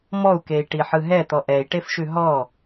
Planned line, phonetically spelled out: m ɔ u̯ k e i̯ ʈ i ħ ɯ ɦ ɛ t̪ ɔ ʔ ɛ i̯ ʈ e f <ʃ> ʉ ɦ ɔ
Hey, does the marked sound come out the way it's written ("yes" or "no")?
yes